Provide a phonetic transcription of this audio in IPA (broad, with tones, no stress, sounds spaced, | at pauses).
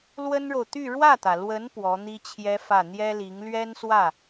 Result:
l w ə˥ n ɻ o˨ ʊ̯ t̪ y˥˧ ɻ w ä˥˩ t̪ ä˩ l w ə˧˥ n p w ɔ˧˥ n̪ i˥ t͡ɕʰ j ɛ˥ f ä˥˩ n̪ j ɛ˥ l i˧˥ ŋ l ɥ ɛ˥ n s w ä˥˩